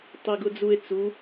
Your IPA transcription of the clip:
tˤ i ɡ ʊ d͡z u e̯ t͡s u

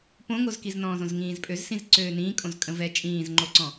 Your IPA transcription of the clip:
p õ ŋ o z k i z n ɔ̃ː z õ z ŋ ĩː z pʼ ø z s ĩ z ǀ øː n ĩː kʼ õ z kʼ ə̃ v ɛ t͡ʃʼ ĩː z ŋ͡ǃ o ǀ ɔ̃

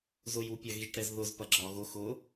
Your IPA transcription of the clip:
z ʊ j u pʲ ɐ ɣ i ʈ ɾ ɛ z ð ʊ z p ɐ ɡ͡ǁ ɒ ɣ ʊ x ʊ

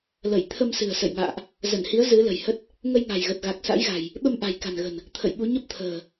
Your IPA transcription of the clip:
l ə˧˩ j t̪ʰ ə˧ m s ɨ̤˨˩ ə̯ s ə̰˧˨ j ŋ a̰ː˧˨ ʔ | z ə˧˩ n h i˨˦ ə̯ z ɨ˨˦ l ə̤˨˩ j h ə˦˥ t̚ | ŋ ə˧ j ŋ a̤˨˩ j ɣ ə˨˩ t̚ ɣ a˨˩ k̚ s a̰˧˥ j ɣ a̤˨˩ j | ɓ ə˧ m ʔ a̤˨˩ j k a̤˨˩ n ɣ ə̤˨˩ n | t̪ʰ ə̰˧˨ j ɓ u˨˦ ɲ ə˦˥ p̚ t̪ʰ ə̤ː˨˩

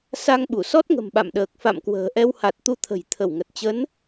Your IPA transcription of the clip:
s a˧ ŋ ɓ u˧˩ s ɔ˦˥ t̚ ŋ ə̤˨˩ m ɓ a̰˧˨ m ɗ əː˨˩ k̚ f a̰˧˨ m k w ə̤ː˨˩ ʔ ɛ˧ w h a˨˩ t̚ t̪ u˧ t̪ʰ ə̤˨˩ j t̪ʰ ə˧˩ w ŋ ə˨˩ t̚ t͡ɕ ə˨˦ n

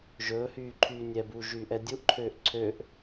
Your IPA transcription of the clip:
ʒ ɵː h yː ǃʰ yː nʲ ɛ b uː ʒ yː ʔ ɛ dʲ u ʔ ǃʰ øː ʔ ǀʰ ø ʔ

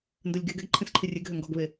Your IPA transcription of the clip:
n d œ lʲ ɡ e ɡ ɛ ɡ ǃʰ ẽ s ǃʰ i rʲ e ɡ ɦ ø ŋ ɡ ɔ ɡ β e

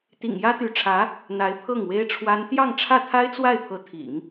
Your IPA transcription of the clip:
t̪ ḭ˨˩ ŋ j ä˥ t̪ y˧˥ ʈ͡ʂʰ ä˧˥ | n̪ a˧˥ ɪ̯ pʰ ɤ˥˩ ŋ w e˥ ɪ̯ ʈ͡ʂʰ w a˥ n t̪ j ɑ˥˧ ŋ ʈ͡ʂʰ ä˥˩ t̪ʰ a˥ ɪ̯ t͡s w a˥˩ ɪ̯ pʰ ɤ˧˥ t̪ʰ ḭ˨˩˦ ŋ

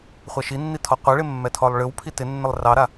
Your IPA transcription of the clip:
χʷ ɛ ʃ i nː i tʰ ɔ qʷ ɛ ɭ ɪ mː ɛ tʰ ɔ lˠ ɭ ɨ w pʰ i t ɪ nː ɪ lˠ r ɑ ɾ a

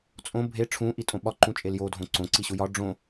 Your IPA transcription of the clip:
t͡sʼ õ bʱ e ʈ͡ʂʰ ũ ʔ i tʼ õ ɓ ɒ ǃ ũ t͡ʃʼ e l j o dʱ õ ǀ õ ǀ i ɕ u j ɒ ɖ͡ʐ õ

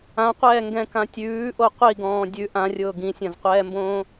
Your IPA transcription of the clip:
ã qʷ ɛː ŋ ɡ ɛ̃ k ã tʲ ʉː ʔ o qʷ i ɡ ɔ̃ː dʲ ʉ ʔ ã rʲ ʊː ɡ ĩ sʲ ã z qʷ ɛː m b õː

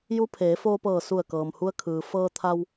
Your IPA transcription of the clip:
j u˧˥ pʰ eː˩˧ f oː˧ p ɤː˧˩ s u˧˩ ə̯ k ɤː˩ m h u˧ ə̯ kʰ ɯː˩ f ɤː˧ t̪ʰ a˧ w

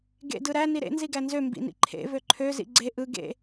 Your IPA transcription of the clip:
ɡ ḛ d ɯ ɾ æ n i ɾ ḛ n z i ɡ æ n z ø m b ḭ n ḭ ǃʰ ḛ v ø ǃʰ ø z ḭ ɡ͡ǀ e ʔ ɯ ɡ ḛ

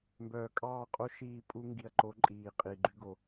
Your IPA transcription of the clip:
m b œː˨ kʼ ɑː˦˨ qʼ o˦ ʃ iː˦˨ pʼ u˦ ŋ ɡ i˨ ɐ̯ ǃ o˨˦ ǃʼ iː˨ qʼ i˨ ɡ͡ǃ y˦ ɡ o˨

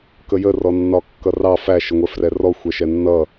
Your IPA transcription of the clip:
k ə j ə r ɔ nː ɒ kː ʌ r ɑ f æ ʃ ə ŋʷ ɛ f r ɛ r ɔ xʷ ɛ ʃ ɛ nː ʌ

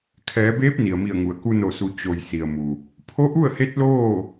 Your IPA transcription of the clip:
kʰ ɛː˩˧ b eː˧˥ p̚ n i˩ ə̯ m i˧˩ ə̯ ŋ u˩ ə̯ k u˧ n o˧˩ s u˩˧ t͡ɕ o˩ j s i˩ ə̯ m u˩ | pʰ o˧˥ ʔ u˥˨ ə̯ h e˧˥ t̚ l oː˥˨

